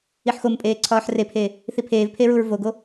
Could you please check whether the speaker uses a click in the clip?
yes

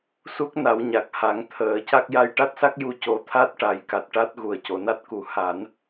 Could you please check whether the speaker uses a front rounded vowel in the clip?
no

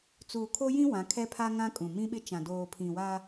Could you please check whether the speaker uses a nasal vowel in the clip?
yes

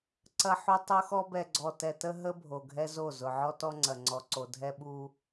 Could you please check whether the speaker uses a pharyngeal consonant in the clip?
yes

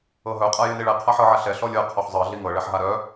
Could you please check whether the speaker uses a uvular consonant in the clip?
yes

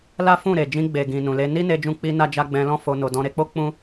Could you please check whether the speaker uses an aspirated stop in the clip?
no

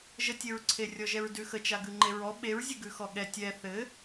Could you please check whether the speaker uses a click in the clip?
yes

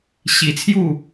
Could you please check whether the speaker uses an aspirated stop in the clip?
yes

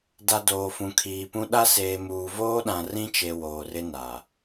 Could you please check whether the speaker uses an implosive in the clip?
yes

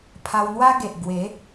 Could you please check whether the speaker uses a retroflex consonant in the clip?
no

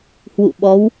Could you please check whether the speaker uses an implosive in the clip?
yes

